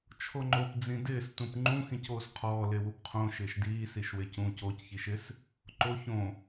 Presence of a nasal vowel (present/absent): present